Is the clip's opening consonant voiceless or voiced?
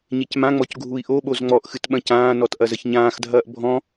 voiced